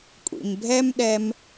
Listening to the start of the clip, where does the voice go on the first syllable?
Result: low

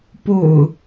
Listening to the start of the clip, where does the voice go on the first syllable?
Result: low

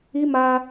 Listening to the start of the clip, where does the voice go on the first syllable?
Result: high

